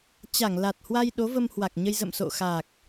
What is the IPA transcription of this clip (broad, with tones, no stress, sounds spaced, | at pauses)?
t͡ɕ a˧˩ ŋ l a˨˩ t̚ h w a˧ j ɗ o˨˦ v ə˧ m h w a˨˩ k̚ ɲ ə˧ j z ə̰˧˨ m s o̰˧˨ x a˨˩ k̚